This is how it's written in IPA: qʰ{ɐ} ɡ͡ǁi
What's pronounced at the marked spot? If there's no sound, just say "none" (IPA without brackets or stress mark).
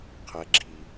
ɐ